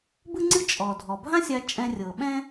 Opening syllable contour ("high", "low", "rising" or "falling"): high